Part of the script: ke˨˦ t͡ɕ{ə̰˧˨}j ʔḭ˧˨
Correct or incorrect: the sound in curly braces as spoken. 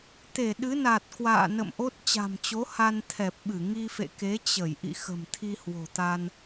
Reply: incorrect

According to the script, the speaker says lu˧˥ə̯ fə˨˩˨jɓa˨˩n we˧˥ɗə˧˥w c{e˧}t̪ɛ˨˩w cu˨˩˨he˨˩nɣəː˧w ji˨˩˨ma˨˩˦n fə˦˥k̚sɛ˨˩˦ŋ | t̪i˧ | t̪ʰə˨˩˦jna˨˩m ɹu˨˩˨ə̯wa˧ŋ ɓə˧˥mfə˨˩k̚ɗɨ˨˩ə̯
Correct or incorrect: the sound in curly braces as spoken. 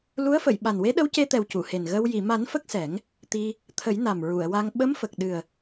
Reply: correct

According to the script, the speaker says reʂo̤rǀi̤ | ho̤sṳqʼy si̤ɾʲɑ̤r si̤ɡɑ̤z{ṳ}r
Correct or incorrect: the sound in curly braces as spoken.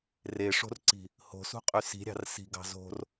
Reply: incorrect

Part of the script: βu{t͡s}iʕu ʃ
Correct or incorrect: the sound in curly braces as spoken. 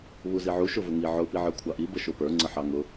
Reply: incorrect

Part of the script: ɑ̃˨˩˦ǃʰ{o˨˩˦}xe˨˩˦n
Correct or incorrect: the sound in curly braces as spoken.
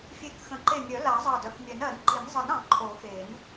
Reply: correct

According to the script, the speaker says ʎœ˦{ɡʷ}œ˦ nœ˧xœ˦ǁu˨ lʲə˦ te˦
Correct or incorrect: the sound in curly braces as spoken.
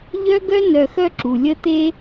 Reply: incorrect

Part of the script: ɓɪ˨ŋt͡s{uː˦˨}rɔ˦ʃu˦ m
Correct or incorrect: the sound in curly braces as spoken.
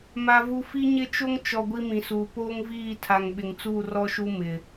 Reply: correct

